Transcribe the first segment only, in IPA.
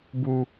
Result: b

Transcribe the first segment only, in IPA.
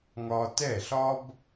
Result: ŋ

